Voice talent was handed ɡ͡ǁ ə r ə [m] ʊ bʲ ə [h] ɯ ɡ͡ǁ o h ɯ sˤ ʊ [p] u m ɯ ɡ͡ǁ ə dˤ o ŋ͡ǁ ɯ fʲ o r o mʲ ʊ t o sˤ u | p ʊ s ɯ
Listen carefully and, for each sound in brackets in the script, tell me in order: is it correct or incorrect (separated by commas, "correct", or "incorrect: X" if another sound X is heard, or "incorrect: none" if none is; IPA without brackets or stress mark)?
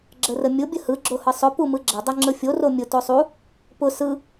incorrect: mʲ, correct, correct